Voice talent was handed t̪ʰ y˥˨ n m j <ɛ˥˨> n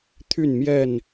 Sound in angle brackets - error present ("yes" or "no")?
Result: no